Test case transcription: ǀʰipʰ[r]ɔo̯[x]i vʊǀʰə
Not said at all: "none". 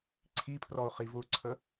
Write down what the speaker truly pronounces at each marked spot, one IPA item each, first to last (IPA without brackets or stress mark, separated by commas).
r, χ